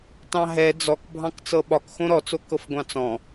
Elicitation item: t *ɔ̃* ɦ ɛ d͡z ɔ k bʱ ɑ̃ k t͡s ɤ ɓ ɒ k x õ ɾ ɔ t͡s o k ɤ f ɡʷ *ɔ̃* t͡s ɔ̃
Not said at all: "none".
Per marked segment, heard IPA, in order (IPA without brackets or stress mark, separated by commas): ɑ̃, ɑ̃